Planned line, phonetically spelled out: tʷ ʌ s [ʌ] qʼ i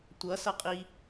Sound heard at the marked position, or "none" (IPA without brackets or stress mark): ʌ